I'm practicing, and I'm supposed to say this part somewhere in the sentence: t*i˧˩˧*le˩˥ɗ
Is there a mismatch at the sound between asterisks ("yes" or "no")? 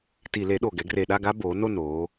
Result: no